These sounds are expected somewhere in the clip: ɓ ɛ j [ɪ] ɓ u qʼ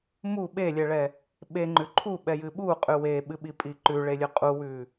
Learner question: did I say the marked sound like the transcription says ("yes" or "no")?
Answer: no